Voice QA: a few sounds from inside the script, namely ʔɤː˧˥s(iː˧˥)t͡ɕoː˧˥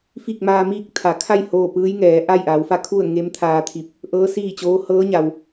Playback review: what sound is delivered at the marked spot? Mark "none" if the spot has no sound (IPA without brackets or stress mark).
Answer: iː˥˨